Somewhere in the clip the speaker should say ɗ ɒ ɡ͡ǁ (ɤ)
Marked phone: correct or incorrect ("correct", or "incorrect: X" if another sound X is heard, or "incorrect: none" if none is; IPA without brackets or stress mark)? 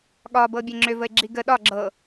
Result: correct